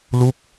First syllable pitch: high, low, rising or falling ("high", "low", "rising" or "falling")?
falling